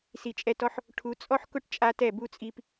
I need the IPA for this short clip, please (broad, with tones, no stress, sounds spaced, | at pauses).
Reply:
s i˨ t͡ʃʼ ɛ˧ t ɔ˦ ħ | ʈʰ u˨˦ t͡sʼ ɔ˦ ħ k ʊ˦ ʈ t͡ʃʼ a˦ t ɛ˦˨ b u˧ t͡sʼ i˧ p